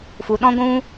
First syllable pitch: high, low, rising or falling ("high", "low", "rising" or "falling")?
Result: low